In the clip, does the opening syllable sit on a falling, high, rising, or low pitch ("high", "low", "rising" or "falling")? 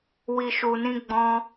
low